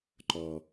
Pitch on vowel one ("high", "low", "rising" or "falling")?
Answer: low